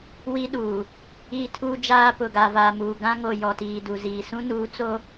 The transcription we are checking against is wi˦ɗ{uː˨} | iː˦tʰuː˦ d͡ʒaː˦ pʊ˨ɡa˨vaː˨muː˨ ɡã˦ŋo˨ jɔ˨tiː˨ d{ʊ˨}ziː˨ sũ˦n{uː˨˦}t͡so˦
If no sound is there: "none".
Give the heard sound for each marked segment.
uː˨, u˨, uː˨˦

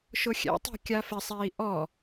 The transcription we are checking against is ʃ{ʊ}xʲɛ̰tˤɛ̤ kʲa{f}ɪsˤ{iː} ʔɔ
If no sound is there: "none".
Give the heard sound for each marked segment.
ʊ, f, iː

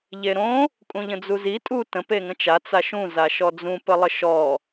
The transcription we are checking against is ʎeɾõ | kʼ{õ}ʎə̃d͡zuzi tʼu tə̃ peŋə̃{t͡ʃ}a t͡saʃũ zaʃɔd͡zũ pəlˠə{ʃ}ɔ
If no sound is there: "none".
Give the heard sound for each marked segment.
ũ, t͡ʃ, ʃ

